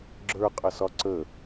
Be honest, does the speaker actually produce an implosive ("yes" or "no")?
no